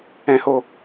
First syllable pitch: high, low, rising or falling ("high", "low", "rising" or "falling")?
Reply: low